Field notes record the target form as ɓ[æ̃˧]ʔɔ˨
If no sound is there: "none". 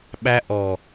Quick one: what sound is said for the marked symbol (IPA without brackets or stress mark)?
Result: æ˧